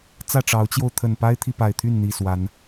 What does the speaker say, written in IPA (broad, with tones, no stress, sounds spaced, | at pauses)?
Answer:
t͡s ä˥˨ ʈ͡ʂ ɑ˨˦ ʊ̯ t͡ɕ j o˧ ʊ̯ t̪ʰ ə˨˩ n p a˦ ɪ̯ t̪ʰ i˨ p a˨˩ ɪ̯ t̪ʰ y˥˨ n n̪ i˨˩ s w a˨˦ n